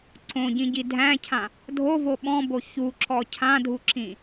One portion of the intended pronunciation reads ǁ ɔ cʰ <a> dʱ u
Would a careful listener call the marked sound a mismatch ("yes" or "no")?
yes